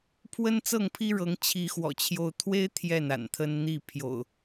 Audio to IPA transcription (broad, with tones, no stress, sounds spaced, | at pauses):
pʰ w ə˦ n t͡s ɤ˥˨ ŋ pʰ i˦ ɻ ɤ˨˦ ŋ t͡ɕʰ i˨˦ x w ɔ̰˨˩ t͡ɕʰ j o˦ ʊ̯ t̪ʰ w e˦ ɪ̯ t̪ʰ j ɛ˥˨ n a̰˨˩ n t̪ʰ ə˦ n n̪ i˥˨ pʰ j o̰˨˩ ʊ̯